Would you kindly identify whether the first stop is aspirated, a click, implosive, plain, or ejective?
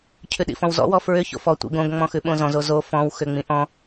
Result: aspirated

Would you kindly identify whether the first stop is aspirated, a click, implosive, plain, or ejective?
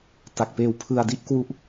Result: plain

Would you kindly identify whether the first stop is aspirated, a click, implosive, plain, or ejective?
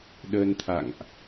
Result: implosive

